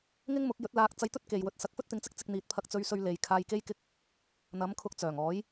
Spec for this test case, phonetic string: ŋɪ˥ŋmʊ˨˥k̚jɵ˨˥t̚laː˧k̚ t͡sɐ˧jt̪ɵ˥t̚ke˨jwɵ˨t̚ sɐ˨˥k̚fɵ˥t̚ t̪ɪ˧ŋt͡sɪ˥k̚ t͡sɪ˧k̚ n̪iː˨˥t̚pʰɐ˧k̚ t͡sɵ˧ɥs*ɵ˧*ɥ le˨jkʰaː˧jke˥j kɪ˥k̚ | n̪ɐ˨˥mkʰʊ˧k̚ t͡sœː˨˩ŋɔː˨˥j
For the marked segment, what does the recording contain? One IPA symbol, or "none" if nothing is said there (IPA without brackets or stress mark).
ɵ˧